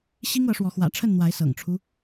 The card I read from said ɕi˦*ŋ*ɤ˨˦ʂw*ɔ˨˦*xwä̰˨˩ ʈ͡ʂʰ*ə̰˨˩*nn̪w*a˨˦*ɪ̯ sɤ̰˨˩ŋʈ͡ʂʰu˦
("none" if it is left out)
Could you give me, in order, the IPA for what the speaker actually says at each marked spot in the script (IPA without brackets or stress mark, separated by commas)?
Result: ŋ, ɔ˨˦, ə˥˨, a˨˦